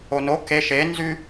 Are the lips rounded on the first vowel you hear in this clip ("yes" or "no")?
yes